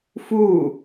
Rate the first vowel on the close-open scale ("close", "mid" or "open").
close